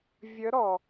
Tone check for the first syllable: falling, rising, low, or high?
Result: rising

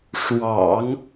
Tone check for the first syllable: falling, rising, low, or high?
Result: low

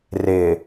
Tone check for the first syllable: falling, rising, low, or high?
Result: low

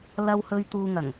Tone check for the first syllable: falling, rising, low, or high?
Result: high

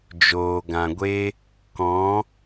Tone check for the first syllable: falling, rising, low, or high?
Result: low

